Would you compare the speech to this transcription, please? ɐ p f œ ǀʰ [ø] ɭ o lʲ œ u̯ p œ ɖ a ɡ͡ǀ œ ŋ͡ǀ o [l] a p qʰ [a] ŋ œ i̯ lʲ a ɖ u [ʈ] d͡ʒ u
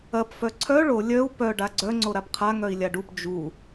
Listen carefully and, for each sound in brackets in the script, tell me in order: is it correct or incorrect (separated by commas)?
incorrect, incorrect, correct, incorrect